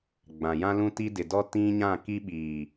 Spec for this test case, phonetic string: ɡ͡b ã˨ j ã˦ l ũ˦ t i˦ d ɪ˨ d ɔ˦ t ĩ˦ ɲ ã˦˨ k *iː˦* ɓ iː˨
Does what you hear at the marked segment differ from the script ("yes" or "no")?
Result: yes